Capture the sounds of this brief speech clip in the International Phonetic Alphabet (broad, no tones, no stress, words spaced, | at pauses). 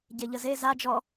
ɟeʎəze za d͡ʒɔ